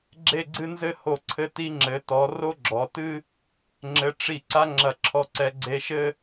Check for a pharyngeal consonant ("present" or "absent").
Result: absent